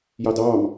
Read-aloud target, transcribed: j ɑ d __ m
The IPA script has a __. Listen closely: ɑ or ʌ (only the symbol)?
ɑ